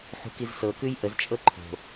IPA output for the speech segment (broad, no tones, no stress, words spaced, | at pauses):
ħṳkizsɤkʉj ʔəzt͡ʃʼɤ ǃʰo̤